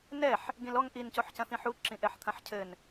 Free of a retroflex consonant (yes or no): yes